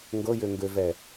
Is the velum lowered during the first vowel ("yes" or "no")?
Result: no